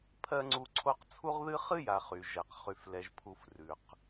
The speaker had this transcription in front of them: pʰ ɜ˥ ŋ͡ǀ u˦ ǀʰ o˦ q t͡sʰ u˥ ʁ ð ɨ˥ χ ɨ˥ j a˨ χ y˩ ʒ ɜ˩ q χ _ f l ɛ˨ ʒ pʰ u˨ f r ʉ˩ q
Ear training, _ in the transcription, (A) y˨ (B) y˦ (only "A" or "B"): A